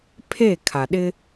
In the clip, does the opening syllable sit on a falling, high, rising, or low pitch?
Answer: falling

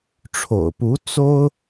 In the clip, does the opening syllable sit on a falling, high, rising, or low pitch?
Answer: low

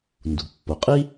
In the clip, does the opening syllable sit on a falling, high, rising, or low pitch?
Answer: low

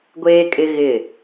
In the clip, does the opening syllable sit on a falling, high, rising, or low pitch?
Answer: high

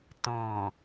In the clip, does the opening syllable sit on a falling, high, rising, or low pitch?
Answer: low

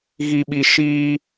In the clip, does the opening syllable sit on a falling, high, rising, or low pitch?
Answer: low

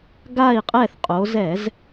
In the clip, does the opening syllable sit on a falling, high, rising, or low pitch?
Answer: falling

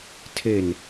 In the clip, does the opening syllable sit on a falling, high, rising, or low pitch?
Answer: low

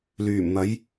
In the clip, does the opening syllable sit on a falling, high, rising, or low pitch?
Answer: low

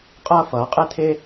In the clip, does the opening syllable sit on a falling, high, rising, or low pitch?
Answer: high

